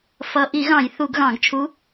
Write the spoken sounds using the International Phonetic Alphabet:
f ʌ˨˩ ʔ i˧˩˧ ɣ ɑ̃˧˩˧ j θ u˧˩˧ ɡ ɣ ɑ̃˧˩˧ ɡ t͡ʃʰ u˧˥

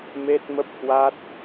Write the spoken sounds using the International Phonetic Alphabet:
m e˦˥ t̚ m ə˦˥ p̚ h w a˦˥ t̚

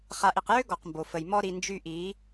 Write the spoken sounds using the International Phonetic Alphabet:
χ a˨ ʔ i˨ q j ø˦ ɡ ɔ˨ q m b o˨ f ə˨ j m ɔ˧ ɾ i˨ n d͡ʒ y˧ ʔ i˨˦

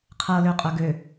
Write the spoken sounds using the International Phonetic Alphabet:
qʰ ɤ l ø qʼ œ ɡ ø

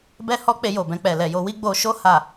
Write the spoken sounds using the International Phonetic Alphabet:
b ɛ˦ h ɔ˦ k͡p e˧ j o˨ b ɛ̃˧ k͡p ɛ˨ l ɛ˨ j o˧ w i˦ ɡ͡b o˧ ʃ o˦ h a˦˨

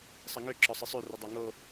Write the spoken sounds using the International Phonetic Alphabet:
sˤ ə ŋ ø ǁ ɒ sˤ ɨ sˤ ø r ə dˤ a ŋ o

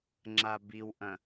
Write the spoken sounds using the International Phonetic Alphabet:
ŋ͡ǁ a b i w ʔ ɐ̃

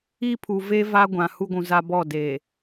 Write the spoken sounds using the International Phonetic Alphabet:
i˦ pʰ u˨ v eː˦ v a˦ ɡʷ ã˨ h u˦ ɡʷ ũ˨ z a˦ b ɔ˦˨ d eː˨

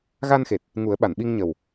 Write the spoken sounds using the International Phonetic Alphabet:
ɣ a˧ n x e˨˩ t̚ | ŋ u˨˩˦ ə̯ ɓ a˨˩˨ n ɓ i˧ ŋ ɲ ə˨˩ w

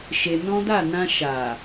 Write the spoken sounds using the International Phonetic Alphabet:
ʃ e˧ n ɔ̃˦ d a˦˨ n ã˧ ʃ a˨

